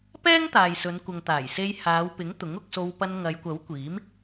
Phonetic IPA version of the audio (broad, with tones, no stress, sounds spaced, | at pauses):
p ɛː˥ ŋ t̪ aː˨ j s ɵ˨˧ n kʷ ɐ˨ ŋ t̪ aː˨˩ j s e˧ j h aː˨˧ w p ɪ˨˥ ŋ t̪ ʊ˨˥ ŋ ʊ˧ k̚ s o˧ w p ɐ˧ n ŋ ɐ˨˧ j kʷ ɐ˨˥ w kʷ iː˨˥ m